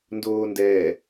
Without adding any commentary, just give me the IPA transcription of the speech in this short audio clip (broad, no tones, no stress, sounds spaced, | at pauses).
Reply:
n d oː n d ɛː